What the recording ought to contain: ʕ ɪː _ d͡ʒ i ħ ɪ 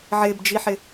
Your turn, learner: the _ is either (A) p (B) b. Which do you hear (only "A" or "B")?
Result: B